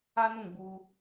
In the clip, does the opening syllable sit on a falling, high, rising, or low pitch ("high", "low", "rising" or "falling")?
high